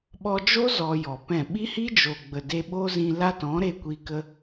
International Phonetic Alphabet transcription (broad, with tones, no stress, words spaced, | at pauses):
ɓɔ˧d͡ʒo˦ zɔ˧jɔ˨pɛ̃˦˨ ɓi˦hi˦d͡ʒo˨ɡ͡bə˨ de˧ɓo˦zĩ˧ la˦tɔ̃˨˦ ɾe˧ kʷi˦kə˦